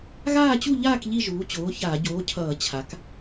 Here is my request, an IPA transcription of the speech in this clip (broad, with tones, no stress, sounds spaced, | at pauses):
ɣ aː˥˨ t͡ɕ u˥˨ ʎ aː˥˨ k ʎ i˥˨ ʒ uː˩˥ t͡ɕ oː˩˥ ç aː˧˩˧ ɟ oː˩˥ cʰ ʌː˧˩˧ t͡ɕʰ a˩˥ k